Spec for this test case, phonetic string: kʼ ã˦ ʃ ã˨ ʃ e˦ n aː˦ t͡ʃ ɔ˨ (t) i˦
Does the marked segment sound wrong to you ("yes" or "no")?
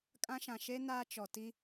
no